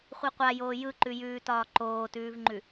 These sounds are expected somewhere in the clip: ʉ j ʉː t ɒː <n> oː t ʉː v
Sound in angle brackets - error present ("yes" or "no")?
yes